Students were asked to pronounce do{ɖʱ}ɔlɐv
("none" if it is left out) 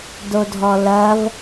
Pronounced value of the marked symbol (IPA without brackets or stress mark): dʱ